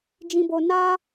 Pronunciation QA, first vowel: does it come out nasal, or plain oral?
nasal